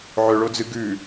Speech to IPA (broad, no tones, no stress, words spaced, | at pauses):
ʕɵɭod͡zɨ ɡʉ